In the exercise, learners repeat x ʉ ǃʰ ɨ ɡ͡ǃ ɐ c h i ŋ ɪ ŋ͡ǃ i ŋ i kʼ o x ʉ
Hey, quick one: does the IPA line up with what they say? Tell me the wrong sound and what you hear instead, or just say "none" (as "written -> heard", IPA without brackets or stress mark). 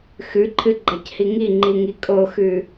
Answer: ɪ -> i